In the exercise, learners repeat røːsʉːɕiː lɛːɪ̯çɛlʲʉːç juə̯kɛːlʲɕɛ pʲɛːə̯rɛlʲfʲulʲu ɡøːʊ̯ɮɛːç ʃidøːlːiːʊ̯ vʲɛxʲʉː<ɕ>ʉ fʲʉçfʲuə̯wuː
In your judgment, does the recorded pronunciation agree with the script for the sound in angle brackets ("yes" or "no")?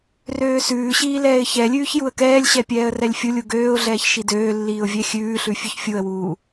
no